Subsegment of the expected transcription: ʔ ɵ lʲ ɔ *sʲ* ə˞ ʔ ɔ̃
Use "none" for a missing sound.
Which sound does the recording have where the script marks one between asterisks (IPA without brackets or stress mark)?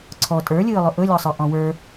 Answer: sˤ